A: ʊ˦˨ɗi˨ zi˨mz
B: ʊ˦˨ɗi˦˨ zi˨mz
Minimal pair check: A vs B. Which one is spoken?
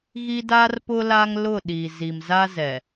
A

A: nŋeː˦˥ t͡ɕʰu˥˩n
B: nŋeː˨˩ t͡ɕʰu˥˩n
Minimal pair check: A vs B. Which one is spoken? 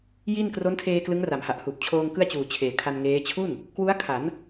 A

